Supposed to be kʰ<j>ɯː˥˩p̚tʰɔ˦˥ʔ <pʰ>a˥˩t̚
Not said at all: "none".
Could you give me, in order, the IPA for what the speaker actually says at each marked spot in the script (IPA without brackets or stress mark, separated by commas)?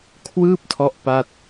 w, p